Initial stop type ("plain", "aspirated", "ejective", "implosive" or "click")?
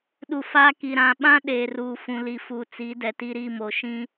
implosive